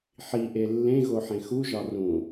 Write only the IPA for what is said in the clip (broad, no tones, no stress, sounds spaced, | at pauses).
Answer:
ħ i ʔ e lː ẽ ɣ o ħ ẽ x u ʒ ɒ r ũ